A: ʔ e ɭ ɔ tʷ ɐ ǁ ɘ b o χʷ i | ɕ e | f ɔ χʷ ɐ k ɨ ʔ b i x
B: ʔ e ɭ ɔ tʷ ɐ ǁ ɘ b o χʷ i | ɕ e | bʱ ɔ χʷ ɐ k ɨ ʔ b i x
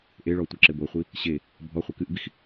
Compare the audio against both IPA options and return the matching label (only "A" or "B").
B